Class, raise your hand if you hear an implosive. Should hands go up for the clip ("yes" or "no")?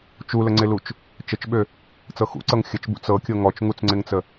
yes